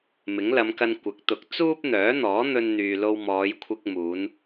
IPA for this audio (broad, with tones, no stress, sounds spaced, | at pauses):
m ɪ˨˥ ŋ l ɐ˨˧ m k ɐ˧ n kʷ ɐ˨˥ k̚ t̪ ʊ˨˥ k̚ t͡s uː˥ p̚ n̪ œː˨˥ n̪ ɔː˨˥ n̪ ɵ˧ n n̪ yː˨ l o˧ w m ɔː˨˧ j kʷʰ ɪ˧ k̚ m uː˨˧ n